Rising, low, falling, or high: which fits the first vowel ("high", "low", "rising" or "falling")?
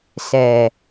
low